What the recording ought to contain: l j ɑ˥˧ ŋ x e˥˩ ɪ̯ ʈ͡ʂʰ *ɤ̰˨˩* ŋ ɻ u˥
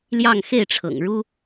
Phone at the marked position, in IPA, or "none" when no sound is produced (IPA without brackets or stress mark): ɤ̰˨˩